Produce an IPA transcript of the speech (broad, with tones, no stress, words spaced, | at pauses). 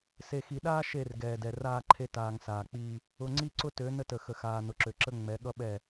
se˨xi˨ɗaː˦ ʃe˦˨r ɡɛː˨dɛ˨raː˦ǃʰe˦ taː˨ŋsaː˨k͡piː˦ | ʊ˨ ŋ͡ǀi˦ǀʊ˦tø˨˦ nə˦tə˨xə˨xaː˨ nʊ˨ǁø˨ǁə˦ ŋ͡mɛ˨˦ɠʌ˦ ɓɛ˦˨